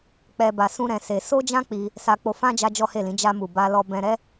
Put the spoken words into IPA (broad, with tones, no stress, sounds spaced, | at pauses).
k͡p ɛ˧ b a˧ s ũ˦ ɾ ɛ̃˧ s e˧ s o˦ d͡ʒ ã˦ k͡p i˧ | s a˧ k͡p o˧ f ã˦ d͡ʒ a˦ d͡ʒ ɔ˦ h e˦˨ l ĩ˨˦ d͡ʒ a˧ m u˨ b a˧ l ɔ˧ b ɛ̃˧ ɾ ɛ˦